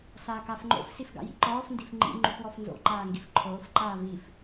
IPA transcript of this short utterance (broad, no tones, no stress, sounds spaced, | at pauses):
s aː k a f ŋ͡ǃ o̰ f s i f ɡ a̰ j ḭ ǃ ɔː f n d i f ŋ͡ǃ ḭ ŋ͡ǃ u f w ɔ f n z o̰ ǃ aː ŋ ɡ i f ǃʰ oː f ǃ aː v i f